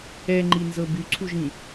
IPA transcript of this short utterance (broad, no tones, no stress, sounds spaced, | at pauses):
ɛ ŋ͡ǃ i n z ɤ b y ǀʰ u ʒ ĩ